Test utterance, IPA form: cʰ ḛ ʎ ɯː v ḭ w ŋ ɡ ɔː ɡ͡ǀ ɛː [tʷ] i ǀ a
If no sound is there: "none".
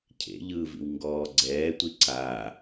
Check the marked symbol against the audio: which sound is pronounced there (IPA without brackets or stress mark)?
tʷ